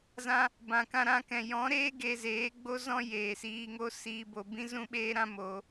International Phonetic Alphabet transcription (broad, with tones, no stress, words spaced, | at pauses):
zã˧ | bã˨kã˧ɾã˧kɛ̃˨ jɔ̃˨˦ɾeː˦ ɡe˧zeː˨˦ɡ͡bo˦ zɔ̃˦jeː˨siː˧ŋo˦ siː˧ bo˨ bĩ˦zũ˦ɓeː˦ ɾã˦ mo˧